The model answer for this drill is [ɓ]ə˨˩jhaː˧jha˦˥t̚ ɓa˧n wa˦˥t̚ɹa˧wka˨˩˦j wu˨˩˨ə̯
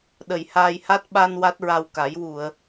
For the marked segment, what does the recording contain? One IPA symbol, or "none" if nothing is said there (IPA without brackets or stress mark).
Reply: ɗ